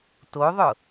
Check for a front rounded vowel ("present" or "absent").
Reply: absent